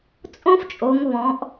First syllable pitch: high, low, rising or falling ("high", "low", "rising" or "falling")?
high